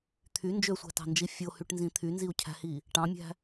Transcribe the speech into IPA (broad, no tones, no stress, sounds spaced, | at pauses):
t̪ʰ y n d͡ʒ ø sʷ æ̤ t ɑ̤ n d͡ʒ i fʲ o h y ʈ n z ĩ t̪ʰ y n z i u̯ cʰ æ̤ h i | ʈ ɑ̃ mʲ æ̤